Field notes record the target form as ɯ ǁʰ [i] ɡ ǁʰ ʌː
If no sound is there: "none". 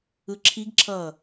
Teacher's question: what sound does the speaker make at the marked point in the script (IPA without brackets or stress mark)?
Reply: i